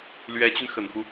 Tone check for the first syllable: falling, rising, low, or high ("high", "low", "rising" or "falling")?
rising